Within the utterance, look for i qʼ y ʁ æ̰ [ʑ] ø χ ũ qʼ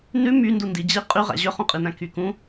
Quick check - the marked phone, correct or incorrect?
correct